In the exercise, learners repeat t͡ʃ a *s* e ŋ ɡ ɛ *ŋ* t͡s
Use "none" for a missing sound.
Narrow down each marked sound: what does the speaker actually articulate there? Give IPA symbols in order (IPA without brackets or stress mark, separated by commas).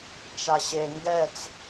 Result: ɕ, none